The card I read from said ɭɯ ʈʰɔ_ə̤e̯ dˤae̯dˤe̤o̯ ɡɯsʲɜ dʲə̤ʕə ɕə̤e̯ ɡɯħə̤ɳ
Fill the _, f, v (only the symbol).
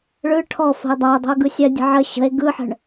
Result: f